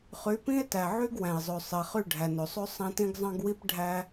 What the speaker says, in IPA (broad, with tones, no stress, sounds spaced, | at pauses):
χ y˨˦ p ĩ˦ e̯ t æ˨ ʕ y˦ ɡ w æ̃˨ e̯ zˤ ø˨ sˤ e˨ χ y˦˨ ɖʱ æ˨ n ø˨ sˤ ø˦ sˤ æ̃˦ t ĩ˦ ɡ zˤ ɑ̃˦ ɡ w i˦ p ɖʱ æ˦